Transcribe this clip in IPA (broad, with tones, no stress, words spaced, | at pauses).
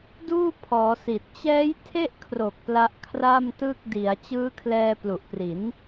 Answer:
duː˥˩pʰɔː˩˦si˨˩t̚ t͡ɕɛː˦˥jtʰe˥˩ʔkʰro˨˩k̚ pla˦˥ʔkʰra˥˩mtɯ˥˩k̚ di˩˦a̯ t͡ɕɯː˦˥kʰlɛː˧plu˨˩ʔpri˩˦n